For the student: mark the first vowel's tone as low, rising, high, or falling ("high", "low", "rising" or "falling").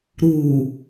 low